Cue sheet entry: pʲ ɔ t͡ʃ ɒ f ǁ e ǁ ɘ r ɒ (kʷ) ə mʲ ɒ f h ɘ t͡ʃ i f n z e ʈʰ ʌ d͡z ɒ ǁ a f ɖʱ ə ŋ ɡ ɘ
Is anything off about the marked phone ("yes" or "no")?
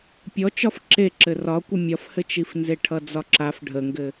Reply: no